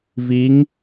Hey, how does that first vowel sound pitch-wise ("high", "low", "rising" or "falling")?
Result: rising